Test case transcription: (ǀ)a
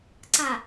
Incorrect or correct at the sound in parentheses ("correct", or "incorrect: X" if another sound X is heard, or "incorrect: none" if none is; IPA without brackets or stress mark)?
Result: correct